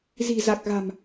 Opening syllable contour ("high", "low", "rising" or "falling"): low